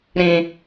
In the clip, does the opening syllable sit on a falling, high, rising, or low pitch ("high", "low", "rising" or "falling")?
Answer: high